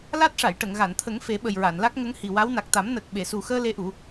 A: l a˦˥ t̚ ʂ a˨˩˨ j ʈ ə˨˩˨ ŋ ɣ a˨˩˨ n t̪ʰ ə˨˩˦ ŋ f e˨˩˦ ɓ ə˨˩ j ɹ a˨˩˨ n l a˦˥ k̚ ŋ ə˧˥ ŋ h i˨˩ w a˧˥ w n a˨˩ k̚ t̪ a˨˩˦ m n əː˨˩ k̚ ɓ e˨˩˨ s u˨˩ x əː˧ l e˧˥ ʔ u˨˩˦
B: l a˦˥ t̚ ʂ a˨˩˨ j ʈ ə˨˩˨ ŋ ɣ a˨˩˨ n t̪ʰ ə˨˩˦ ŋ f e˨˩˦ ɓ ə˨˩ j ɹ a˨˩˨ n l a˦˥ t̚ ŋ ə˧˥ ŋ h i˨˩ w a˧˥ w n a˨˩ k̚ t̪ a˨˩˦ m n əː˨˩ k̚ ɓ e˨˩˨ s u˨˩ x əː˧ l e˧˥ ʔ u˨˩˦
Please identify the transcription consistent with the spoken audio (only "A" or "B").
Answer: A